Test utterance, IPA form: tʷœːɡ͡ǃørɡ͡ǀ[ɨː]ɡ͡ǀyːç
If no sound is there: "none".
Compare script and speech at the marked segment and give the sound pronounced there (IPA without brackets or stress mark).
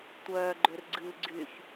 ɨː